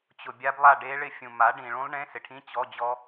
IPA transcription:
t͡ɕ ʊ˨ bʲ a˦˥ b lˠ a˥˧ ɖ e˦˥ ɭ ɪ˥˧ fʲ ũ˨ m a˨˥ ɖ ĩ˨ ɭ ũ˦˥ lˠ ɳ ẽ˧˥˧ s ɪ˨ ʈʰ ĩ˧˥˧ t͡ɕ ɔ˧˥˧ d͡ʑ ɔ˦˥

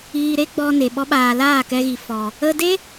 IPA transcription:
iː˧ ɾ e˦ ɡ͡b ɔ˧ n e˨ ɓ ɔ˦ ɓ aː˧ l aː˦˨ k ɛ˧ ɣ i˨ f ɔ˨ | ə˧ d e˦

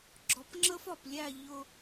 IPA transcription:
ɡ͡ǁ ɔ˨ p ŋ͡ǁ ə˦ f ɒ˨ p lʲ æ˦˨ ʎ ʊ˦

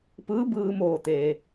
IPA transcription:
p ɯː˧˥ b ɯː˧ m oː˧˩ t̪ eː˩

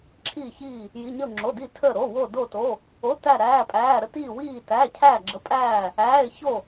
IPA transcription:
ǁʰ iː˧˩ ç iː˧˩ | j i˩˧˩ ɲ ə˧˩ ʊ̯ ŋ͡ǁ o˩˧˩ d i˧˩ tʰ əː˧˩ ɾ o˩˧˩ w o˧˩ d o˧˩ t o˩˧˩ | o˩˧˩ t æ˧˩ ɾ æː˩˧˩ pʼ æː˩˧˩ ɾ ə˧˩ t iː˧˩ w iː˧˩ t æ˩˧˩ cʰ æː˧˩ ɡ͡ǁ ə˩˧˩ pʼ æː˧˩ | æː˩˧˩ ɪ̯ ç o˧˩

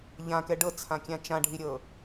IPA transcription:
ʎ ã k ɛ ɖ ɤ t͡sʰ ã kʲ ã t͡ʃ ã ɖʱ i ɾʲ ɤ

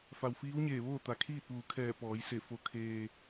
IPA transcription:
f a˩ w f iː˧˥ w ɲ eː˧˩ ʋ oː˥˨ t̪ a˩ kʰ iː˥˨ t̚ ʋ uː˩˧ kʰ ɛː˧˩ p ɔː˩˧ j s e˧˩ f o˧ kʰ eː˧

